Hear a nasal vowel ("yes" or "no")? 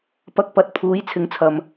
no